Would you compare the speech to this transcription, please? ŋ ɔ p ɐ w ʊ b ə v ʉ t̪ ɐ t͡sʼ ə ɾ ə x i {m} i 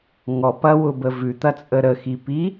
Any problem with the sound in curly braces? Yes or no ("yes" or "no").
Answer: yes